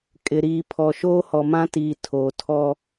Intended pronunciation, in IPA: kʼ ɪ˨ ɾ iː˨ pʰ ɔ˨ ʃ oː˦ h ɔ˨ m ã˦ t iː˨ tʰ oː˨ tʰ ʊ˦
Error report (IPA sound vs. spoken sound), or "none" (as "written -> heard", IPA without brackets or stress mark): ʊ˦ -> ɔ˦